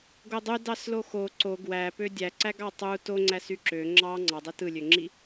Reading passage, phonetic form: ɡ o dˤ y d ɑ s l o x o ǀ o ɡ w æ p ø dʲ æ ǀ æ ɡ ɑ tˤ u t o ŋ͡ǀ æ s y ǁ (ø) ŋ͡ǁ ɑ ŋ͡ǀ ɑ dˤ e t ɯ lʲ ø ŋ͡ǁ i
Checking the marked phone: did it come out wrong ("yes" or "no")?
no